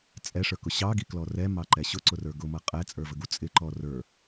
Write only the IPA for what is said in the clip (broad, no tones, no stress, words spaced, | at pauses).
t͡sʼɛʂə˞kʊ ɕɑɡiklɔ rɛmɑǃɛ ɕʊǀʊrə˞ ɡʊmʌ qʼɛt͡sʼə˞vəɡu t͡sʼɪǃɔ rə˞